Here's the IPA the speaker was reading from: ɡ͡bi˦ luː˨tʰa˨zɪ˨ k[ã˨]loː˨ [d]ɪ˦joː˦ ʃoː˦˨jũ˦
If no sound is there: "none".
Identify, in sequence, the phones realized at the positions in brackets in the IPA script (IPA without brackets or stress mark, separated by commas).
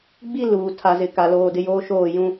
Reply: a˨, d